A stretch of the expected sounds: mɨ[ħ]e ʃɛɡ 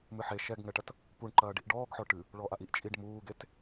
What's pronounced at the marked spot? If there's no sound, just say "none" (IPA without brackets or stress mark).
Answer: ħ